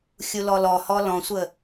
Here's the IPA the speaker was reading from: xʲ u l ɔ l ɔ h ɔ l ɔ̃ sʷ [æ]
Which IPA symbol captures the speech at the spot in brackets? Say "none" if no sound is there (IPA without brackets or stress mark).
ə